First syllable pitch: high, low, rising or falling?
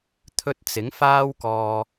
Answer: high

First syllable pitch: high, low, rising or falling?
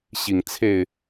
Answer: low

